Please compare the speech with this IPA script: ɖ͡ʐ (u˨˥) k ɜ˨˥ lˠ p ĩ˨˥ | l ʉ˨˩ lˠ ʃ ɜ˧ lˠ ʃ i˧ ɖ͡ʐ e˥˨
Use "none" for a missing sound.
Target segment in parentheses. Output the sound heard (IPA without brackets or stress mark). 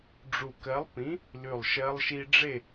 u˨˩